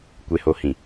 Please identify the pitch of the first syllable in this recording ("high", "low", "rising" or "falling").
low